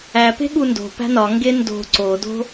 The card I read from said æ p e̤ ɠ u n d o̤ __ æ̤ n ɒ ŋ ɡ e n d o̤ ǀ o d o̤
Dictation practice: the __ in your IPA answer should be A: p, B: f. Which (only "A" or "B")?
A